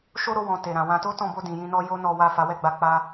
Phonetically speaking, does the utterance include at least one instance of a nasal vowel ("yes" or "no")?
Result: yes